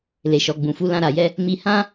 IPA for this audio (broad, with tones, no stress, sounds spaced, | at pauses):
l e˨ ʃ ɔ˨ ɡ͡b ũ˨ f u˨˦ l ã˧ ɾ a˨ j ɛ˧ | m i˧ h ã˦